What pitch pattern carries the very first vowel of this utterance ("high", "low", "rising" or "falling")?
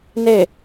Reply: falling